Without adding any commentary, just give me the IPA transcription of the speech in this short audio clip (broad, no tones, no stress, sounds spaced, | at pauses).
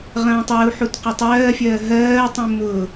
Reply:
ʁ ɐ̃ː tˤ ɜ u̯ ħ u t q ʊ tˤ ɜː fʲ ɜː ɦ ɜː tˤ ũ m ʊ